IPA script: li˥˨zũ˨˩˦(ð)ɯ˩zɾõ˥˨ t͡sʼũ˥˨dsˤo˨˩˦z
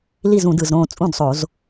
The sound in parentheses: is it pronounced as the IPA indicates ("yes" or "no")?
no